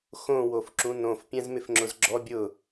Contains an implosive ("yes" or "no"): no